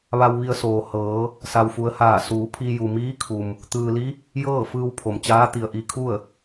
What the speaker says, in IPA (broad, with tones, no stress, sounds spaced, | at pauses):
ʋ a˧ w ʋ i˧ ə̯ s oː˩ h ɤː˩˧ | s a˩ w f u˩˧ ə̯ h aː˧˩ s uː˩˧ pʰ i˧ j u˩ m iː˧˥ kʰ u˩ m | t̪ ɯː˩ l i˧˥ | j ɤː˥˨ f ɯː˧ w pʰ o˩ m t͡ɕ aː˧˥ t̪ i˩ ə̯ ʔ i˧ kʰ u˥˨ ə̯